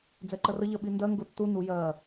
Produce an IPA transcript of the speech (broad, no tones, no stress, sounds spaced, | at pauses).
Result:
d͡z ɛ ǃ ɜ r ə ʎ ɜ ɓ i n d ɜ ŋ ɡ ʊ tː u n u j ɜ